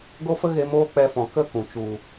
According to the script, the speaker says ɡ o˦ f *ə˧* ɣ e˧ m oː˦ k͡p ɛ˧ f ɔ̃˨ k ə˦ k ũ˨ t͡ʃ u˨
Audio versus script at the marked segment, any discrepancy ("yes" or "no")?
yes